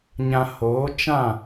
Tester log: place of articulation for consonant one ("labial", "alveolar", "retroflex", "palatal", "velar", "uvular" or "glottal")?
palatal